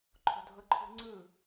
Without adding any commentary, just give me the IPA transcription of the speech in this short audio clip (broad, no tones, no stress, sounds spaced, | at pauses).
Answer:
ǃʰ o̤ dʱ ɤ ǃʰ ṳ ŋ͡ǀ ɯ